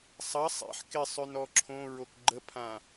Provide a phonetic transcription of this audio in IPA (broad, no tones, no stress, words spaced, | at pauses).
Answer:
sˤɐ sˤɛ̰ħ kɪsˤøn ɔǁʰõɹok ɡ͡ǃəpʰã